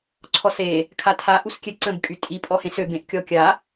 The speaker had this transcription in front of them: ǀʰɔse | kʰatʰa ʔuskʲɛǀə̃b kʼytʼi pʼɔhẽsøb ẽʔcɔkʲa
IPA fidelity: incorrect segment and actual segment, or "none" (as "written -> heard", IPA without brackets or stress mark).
c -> kʲ